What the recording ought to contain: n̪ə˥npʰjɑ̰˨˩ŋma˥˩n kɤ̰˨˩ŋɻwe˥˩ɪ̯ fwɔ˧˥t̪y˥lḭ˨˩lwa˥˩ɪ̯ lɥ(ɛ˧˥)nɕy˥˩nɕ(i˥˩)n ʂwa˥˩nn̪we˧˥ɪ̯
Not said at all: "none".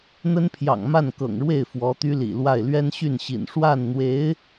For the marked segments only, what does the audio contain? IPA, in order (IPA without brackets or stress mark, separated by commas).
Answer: ɛ˥, ḭ˨˩